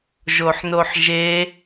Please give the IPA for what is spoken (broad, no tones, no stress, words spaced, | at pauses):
ʒoħnoħʒe